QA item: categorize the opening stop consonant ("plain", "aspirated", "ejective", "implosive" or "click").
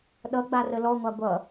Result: implosive